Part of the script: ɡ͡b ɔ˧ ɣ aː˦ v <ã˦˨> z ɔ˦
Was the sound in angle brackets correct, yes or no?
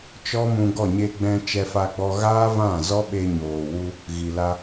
yes